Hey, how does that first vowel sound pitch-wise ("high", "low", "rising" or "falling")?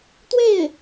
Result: falling